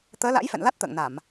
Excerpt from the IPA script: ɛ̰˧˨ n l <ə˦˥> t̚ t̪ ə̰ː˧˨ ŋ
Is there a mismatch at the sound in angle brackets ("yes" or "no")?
yes